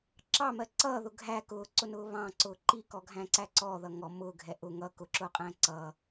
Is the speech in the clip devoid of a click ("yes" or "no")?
no